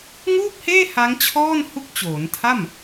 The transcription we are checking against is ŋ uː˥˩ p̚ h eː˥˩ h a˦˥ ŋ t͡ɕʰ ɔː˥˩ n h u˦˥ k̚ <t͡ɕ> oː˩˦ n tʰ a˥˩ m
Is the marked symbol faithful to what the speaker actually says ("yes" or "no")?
yes